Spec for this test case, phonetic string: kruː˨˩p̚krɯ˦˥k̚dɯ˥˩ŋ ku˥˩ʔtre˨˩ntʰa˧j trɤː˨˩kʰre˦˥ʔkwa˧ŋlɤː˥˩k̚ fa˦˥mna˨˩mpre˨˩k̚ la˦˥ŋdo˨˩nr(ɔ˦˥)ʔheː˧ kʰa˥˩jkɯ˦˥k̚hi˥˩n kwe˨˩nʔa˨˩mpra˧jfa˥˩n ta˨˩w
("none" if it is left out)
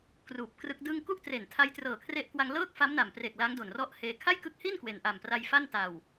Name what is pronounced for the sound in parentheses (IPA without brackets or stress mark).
ɔ˦˥